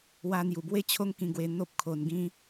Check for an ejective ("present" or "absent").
absent